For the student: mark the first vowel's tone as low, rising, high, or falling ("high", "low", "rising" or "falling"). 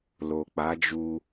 low